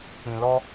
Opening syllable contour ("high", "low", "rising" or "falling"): low